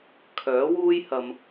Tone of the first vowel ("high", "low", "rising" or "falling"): rising